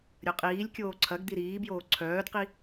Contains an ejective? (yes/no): yes